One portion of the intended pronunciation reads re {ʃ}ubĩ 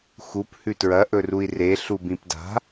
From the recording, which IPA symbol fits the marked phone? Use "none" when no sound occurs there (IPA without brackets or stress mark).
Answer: ɬ